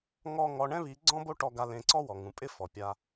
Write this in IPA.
ŋ ɔ˦ ŋ ɔ˧ ɳ ɛ̃˦ β i˨˦ ɡ͡ǀ ɔ̃˦ b o˦ ʈ ɔ˧ ɡ a˧ l ẽ˧ ǀ ɔ˦ w ɔ˨ ŋ ũ˨ pʼ ɪ˦ f ɔ˨ pʲ a˧

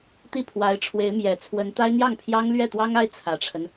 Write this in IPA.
t̪ i˥˩ pʰ w a˧˥ ɪ̯ ʈ͡ʂʰ w e˧˥ ɪ̯ m j ɛ˨˩ t͡sʰ w ə˧˥ n t̪ a˥ ɪ̯ n̪ j ɑ˥˩ ŋ pʰ j ɑ˥ ŋ l ɥ ɛ˥˩ t̪ w ɑ˥ ŋ a˥ ɪ̯ t͡sʰ ä˨˩ ʈ͡ʂʰ ə˦ n

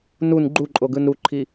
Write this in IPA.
n u n ɡ͡ǃ u ǃʼ o ɡ ɯ n ɾ u ǃʰ i

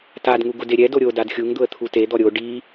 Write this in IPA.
t a d ŋ u ɡ ʊ d e ɾʲ ɛ d o ɾʲ o d a d xʲ u ŋ d̪ ʊ ə̯ t̪ʰ u t e d̪ ɔ ɾʲ o ɖ i

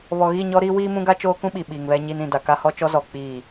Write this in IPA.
β ɔ˨ ɣ i˦˨ ɲ ɔ˦ ɾ iː˦ w iː˦ m ũ˦ ɡ a˦ t͡ʃ oː˦ k ũ˦ ɓ i˨ ɓ iː˨ ŋ β ɛ˦ ɲ iː˦ n ĩ˨ d a˨ k a˦ h ɔ˦ t͡ʃ ɔ˦ z ɔ˨ k͡p iː˦˨

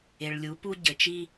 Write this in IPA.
e˨ ɭ lʲ u˨˦ p u˦ ɟ ɘ˨ t͡ʃ i˦

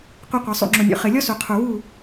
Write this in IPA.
qʷ i˨ qʷ ɐ˨ sˤ ṵ˨ ŋ͡ǁ o˨ nʲ o̰˨ χ ɘ˨ lʲ ɔ˦ s u˨ qʰ u˨ w u˦˨

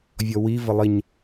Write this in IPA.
vʲ ɔ w i v ə lˠ i ɲ

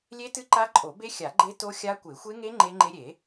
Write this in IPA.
lʲ e˦˥ t ɨ˦˥ ǃ a˦˥ ǃʼ o˨˩˦ b e˦˥ xʲ a˨˩˦ ɡ͡ǃ e˦˥ t o˦˥ xʲ a˦˥ kʷ e˨˩˦ xʷ e˦˥ ŋ e˦˥ ŋ͡ǃ e˦˥ ŋ͡ǃ e˦˥ ɾʲ e˨˩˦

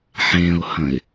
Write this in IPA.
ħ ẽ ʊ̯ h ɐ̃ ɪ̯

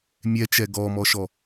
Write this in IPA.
mʲ ɛ t͡ʃ ɛ ɡ ɔ m ɔ ʃ ɔ

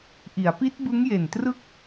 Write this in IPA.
ʔ i˩˦ a̯ p i˦˥ t̚ b ɯ˦˥ ŋ j e˨˩ n t r ɯ˥˩ k̚

